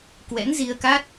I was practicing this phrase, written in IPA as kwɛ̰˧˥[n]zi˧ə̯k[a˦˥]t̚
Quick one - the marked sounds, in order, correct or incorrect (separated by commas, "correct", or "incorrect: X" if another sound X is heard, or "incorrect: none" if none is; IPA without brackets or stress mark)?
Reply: correct, correct